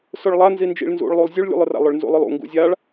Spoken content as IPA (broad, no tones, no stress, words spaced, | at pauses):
sʊɭlˠa nzind͡ʒḭɭnzṵɭlˠulˠ zʲuɭlʲṵlˠʊra̰ lˠʊɭnzṵlˠʊlˠṵ ŋɡṵzʲaɭ